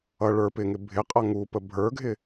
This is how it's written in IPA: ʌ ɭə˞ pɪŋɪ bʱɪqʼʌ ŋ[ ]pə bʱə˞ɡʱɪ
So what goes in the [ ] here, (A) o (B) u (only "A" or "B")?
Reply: B